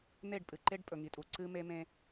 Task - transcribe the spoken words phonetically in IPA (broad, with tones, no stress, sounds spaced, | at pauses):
n̪ e˦˨ ɖ pʼ ɨ˨ ǃ e˦ ɖ pʼ ɵ˨ ŋ i˨ tʼ u˨ ǀ ɨ˦ m e˦ m ẽ˦